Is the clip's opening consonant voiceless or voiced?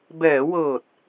voiced